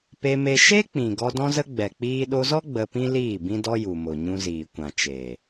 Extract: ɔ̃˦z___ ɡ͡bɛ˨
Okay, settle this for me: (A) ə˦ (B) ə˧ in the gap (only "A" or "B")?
A